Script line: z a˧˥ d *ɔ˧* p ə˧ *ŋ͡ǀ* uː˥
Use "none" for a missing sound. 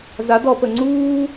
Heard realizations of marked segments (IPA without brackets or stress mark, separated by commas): ɔ˧, ŋ͡ǀ